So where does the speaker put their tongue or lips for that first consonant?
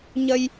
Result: palate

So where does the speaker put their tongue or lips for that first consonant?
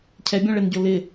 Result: palate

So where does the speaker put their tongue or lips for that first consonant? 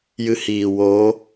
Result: palate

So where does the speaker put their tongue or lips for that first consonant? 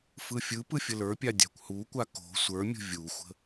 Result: lips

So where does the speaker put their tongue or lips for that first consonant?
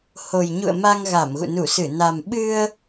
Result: throat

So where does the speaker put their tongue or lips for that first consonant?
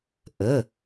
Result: throat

